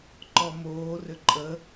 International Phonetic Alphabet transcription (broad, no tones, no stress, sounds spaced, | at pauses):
ǃ ɔ m oː r ʏ ǃʼ ə